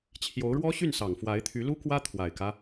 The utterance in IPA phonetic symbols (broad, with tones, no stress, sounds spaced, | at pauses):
t͡ɕʰ j o˧˥ ʊ̯ ɻ w ɔ˥ ɕ y˥˩ n s ɑ˨˩ ŋ f w a˧˥ ɪ̯ t̪ʰ y˧˥ l u˥ k w ä˥ t̪ʰ w a˨˩ ɪ̯ k ä˦